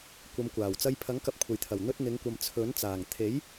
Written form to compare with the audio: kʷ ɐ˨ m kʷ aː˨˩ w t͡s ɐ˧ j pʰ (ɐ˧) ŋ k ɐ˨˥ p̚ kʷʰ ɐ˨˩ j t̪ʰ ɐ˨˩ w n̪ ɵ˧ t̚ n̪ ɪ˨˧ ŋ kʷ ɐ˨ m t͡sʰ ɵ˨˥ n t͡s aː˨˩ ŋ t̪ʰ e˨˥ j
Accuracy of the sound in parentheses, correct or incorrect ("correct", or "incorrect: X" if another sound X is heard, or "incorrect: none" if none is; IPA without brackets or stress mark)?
incorrect: ɐ˨˥